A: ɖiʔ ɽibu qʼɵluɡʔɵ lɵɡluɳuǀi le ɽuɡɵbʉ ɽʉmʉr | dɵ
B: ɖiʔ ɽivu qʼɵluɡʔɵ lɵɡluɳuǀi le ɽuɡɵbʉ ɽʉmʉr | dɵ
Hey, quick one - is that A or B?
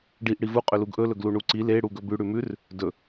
B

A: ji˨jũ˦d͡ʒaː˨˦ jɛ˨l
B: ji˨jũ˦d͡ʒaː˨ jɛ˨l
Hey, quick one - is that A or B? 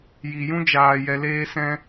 B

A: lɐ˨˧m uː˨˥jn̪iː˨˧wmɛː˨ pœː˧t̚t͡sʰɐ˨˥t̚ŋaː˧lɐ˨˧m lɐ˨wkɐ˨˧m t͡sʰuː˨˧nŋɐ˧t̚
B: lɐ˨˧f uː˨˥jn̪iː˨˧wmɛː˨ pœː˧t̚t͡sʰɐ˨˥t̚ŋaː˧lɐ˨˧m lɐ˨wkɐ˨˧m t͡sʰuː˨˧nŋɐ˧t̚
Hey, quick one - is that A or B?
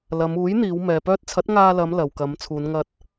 A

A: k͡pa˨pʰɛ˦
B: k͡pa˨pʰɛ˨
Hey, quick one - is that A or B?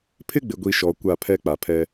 A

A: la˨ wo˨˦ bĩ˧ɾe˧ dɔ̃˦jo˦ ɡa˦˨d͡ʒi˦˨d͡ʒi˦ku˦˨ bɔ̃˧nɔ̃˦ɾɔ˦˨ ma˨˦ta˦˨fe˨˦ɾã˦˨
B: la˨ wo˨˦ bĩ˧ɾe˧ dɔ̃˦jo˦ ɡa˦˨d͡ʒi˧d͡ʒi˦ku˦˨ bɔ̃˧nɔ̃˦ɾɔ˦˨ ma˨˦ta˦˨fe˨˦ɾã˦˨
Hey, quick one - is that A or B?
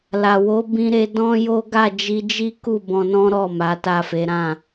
B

